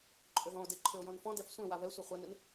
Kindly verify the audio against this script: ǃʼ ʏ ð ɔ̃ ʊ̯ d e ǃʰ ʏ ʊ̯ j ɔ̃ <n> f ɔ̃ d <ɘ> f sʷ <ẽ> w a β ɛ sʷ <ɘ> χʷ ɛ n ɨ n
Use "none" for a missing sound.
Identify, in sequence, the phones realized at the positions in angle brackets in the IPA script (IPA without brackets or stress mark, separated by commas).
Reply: n, ɛ, ẽ, ɘ